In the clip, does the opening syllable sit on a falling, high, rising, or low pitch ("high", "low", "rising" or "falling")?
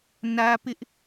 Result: high